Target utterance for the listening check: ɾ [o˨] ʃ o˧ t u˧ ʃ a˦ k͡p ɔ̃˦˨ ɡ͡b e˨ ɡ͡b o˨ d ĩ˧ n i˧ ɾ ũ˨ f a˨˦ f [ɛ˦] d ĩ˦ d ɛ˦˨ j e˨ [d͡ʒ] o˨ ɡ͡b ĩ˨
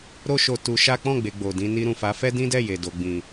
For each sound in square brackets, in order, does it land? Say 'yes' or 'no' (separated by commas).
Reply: no, yes, no